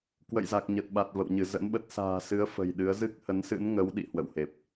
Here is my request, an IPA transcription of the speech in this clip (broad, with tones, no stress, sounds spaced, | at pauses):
k w ə̰˧˨ j z a˨˩ k̚ ɲ ə˨˩ t̚ ɓ a˨˩ t̚ v ə̰˧˨ w ɲ ɨ˧˩ z ə̰˧˥ n ɓ ə˦˥ t̚ s a̤ː˨˩ s ɨ˨˦ ə̯ f ə̤˨˩ j ɗ ɨ˨˦ ə̯ z ɨ˦˥ k̚ h ə˨˦ n s ɨ̰˧˥ n ŋ ə˨˦ w ɗ ḭ˧˨ h w ə̰˧˨ w h e˨˩ p̚